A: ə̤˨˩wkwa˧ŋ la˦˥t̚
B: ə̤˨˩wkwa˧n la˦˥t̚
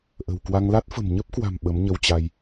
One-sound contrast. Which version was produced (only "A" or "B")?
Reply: A